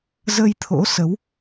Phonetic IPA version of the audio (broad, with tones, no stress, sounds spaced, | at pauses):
z ə˧ j t̪ʰ o̰˧˥ s ə˨˦ w